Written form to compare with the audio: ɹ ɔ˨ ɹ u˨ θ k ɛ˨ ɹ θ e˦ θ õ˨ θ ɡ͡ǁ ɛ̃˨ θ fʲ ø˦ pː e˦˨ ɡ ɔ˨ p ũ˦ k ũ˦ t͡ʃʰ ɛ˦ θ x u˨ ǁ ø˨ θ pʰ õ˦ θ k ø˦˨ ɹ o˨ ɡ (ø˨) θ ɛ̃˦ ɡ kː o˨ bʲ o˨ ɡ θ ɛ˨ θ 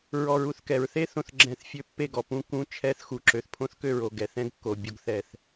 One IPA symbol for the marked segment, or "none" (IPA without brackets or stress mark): ɛ˨